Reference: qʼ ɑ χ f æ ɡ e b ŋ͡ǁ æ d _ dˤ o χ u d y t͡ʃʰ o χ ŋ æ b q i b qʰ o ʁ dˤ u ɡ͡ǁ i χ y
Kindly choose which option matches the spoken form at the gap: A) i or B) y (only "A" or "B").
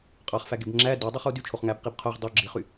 B